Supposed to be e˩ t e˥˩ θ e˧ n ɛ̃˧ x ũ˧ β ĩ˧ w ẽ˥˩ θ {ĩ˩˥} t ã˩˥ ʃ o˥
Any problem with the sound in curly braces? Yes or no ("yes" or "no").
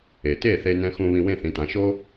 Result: no